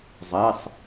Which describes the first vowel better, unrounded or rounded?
unrounded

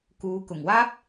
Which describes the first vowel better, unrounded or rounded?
rounded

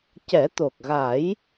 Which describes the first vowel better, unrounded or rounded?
unrounded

